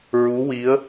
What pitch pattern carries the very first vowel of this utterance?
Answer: rising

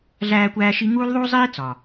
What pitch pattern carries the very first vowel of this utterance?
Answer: high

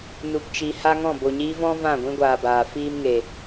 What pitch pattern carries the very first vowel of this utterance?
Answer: low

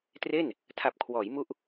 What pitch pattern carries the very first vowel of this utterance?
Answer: falling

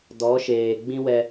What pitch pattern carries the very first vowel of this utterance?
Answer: rising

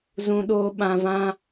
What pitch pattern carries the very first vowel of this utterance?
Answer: high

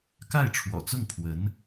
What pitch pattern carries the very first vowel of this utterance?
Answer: falling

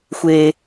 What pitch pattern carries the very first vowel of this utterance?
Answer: low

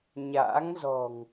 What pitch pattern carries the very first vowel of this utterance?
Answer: rising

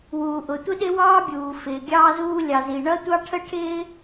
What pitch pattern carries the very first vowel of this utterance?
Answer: low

